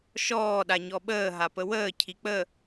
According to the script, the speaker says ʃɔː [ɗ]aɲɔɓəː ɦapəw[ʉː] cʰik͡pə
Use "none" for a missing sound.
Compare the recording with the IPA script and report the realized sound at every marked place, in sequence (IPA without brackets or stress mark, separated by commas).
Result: ɗ, əː